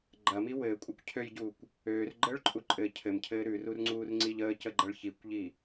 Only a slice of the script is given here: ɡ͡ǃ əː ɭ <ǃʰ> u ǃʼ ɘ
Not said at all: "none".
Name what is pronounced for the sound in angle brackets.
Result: ǃʼ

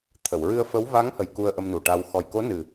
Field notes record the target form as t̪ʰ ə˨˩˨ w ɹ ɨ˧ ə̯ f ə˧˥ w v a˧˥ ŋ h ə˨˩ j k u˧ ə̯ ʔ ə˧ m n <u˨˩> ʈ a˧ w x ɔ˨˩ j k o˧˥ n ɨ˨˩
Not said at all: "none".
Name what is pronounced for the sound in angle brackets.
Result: u˨˩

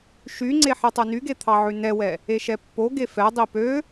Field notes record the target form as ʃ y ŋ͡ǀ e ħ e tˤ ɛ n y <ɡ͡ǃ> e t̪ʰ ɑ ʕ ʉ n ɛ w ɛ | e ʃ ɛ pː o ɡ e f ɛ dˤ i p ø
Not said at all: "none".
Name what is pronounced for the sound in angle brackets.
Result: ɡ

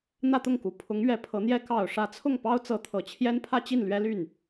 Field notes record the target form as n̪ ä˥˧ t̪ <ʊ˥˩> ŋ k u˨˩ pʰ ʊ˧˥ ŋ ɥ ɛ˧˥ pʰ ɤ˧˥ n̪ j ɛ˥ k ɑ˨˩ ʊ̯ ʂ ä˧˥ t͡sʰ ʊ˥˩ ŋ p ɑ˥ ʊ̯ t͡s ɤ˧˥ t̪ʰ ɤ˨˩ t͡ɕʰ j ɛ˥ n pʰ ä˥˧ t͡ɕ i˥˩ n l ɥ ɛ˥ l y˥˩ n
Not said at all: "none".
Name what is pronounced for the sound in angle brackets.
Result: ʊ˥˩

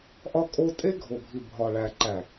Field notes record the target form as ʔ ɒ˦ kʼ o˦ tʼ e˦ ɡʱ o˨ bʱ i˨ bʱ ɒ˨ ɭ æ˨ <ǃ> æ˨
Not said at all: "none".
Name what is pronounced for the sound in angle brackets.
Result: ǃ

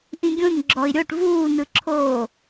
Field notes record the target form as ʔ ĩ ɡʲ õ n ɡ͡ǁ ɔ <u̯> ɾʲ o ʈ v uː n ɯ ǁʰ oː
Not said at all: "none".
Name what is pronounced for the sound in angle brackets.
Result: i̯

